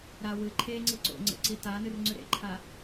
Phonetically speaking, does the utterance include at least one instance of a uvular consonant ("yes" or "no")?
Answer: no